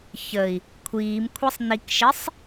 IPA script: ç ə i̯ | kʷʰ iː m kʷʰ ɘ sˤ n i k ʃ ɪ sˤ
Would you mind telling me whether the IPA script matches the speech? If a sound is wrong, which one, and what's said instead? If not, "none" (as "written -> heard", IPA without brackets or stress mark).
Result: ɘ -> ɛ